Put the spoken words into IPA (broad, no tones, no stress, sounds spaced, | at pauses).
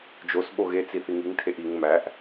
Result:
d͡ʒ o s ɓ o ɣ e t͡s i θ i ŋ i ŋ tʰ e ʔ i ŋ m æ ʔ